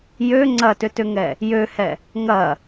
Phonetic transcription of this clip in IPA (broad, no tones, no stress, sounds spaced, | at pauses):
j ø ŋ͡ǀ ɐ t ʏ t ʏ ŋ ɛ | j ø h ɛ | ŋ ɐ